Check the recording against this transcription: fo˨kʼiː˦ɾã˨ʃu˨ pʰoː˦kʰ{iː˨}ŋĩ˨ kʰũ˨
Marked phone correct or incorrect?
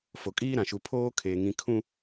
incorrect: eː˨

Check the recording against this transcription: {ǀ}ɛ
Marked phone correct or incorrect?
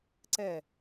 correct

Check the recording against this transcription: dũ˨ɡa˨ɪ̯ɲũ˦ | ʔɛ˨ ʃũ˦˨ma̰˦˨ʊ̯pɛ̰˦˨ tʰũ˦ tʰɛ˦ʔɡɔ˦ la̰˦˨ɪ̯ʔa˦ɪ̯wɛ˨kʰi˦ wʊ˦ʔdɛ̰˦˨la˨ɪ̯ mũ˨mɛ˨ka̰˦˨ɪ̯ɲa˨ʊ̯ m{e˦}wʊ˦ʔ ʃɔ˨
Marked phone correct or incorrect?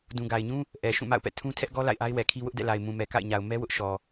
incorrect: ɛ˦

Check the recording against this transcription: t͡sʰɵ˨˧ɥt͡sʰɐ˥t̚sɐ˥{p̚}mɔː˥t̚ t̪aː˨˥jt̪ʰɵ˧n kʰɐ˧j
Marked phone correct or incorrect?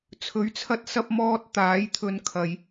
correct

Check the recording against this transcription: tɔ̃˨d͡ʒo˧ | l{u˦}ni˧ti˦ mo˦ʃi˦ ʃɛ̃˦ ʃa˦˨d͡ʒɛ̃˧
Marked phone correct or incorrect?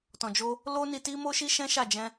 incorrect: o˦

